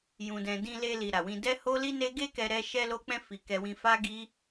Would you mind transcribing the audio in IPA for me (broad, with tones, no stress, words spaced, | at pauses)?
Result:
jũ˧dɛ̃˧ dĩ˧le˧li˨ ɾa˨wĩ˧dɛ˦ ho˦li˦ne˦ ɡe˦kɛ˧ɾɛ˧ ʃɛ˧lo˧k͡pɛ̃˧fi˨ kɛ˧wĩ˧fa˦ɡi˦